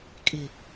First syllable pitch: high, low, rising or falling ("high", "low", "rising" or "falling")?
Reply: low